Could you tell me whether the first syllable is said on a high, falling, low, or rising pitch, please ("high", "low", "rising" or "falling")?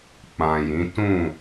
low